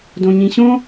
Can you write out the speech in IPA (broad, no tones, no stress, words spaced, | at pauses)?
dõɲĩɕõ